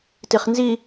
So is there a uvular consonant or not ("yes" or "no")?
yes